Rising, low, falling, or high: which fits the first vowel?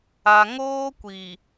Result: low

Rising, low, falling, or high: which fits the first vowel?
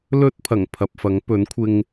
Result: high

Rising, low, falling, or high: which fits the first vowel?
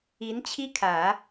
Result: rising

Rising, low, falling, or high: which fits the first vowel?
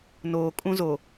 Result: low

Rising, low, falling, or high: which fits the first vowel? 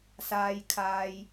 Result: high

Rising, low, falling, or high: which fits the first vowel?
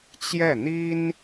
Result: falling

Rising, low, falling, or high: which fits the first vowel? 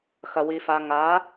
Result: low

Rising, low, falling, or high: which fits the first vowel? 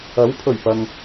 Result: rising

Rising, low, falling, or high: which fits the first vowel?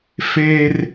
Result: high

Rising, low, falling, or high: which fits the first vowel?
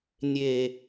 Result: low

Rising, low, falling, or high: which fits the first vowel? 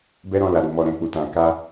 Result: high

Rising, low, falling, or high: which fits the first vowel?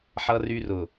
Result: high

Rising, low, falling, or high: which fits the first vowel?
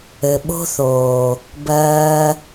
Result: low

